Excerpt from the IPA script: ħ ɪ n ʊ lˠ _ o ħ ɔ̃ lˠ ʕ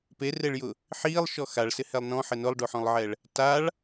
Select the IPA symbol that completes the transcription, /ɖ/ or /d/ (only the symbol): ɖ